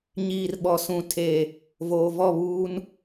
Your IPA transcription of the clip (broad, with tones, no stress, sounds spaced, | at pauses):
ɲ iː˨ r ɓ ɔ˨ s ũ˨ tʰ e˨ | v oː˨ v ɔ˦˨ β uː˦ n